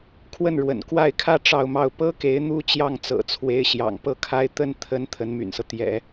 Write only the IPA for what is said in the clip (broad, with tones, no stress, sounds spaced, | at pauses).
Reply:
kʰ w ə˥˩ n ɻ w ə̰˨˩ n k w a˥˩ ɪ̯ kʰ ä˥ ʈ͡ʂ ɑ˥˧ ʊ̯ m ɑ˥˩ ʊ̯ p ɤ˥ k e˧˥ ɪ̯ n̪ u˥ t͡ɕ j ɑ˥˩ ŋ t͡s ɤ̰˨˩ t͡sʰ w e˧˥ ɪ̯ ɕ j ɑ̰˨˩ ŋ p ɤ˥˩ kʰ a˥ ɪ̯ t̪ ə˥˩ n t̪ʰ ə˧˥ n t̪ʰ ə˧˥ n m y̰˨˩ n s ɤ˦ t̪ j ɛ̰˨˩˦